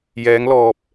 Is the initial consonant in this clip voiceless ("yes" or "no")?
no